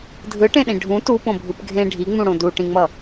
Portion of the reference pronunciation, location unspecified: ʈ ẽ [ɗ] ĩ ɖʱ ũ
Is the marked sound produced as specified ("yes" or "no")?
yes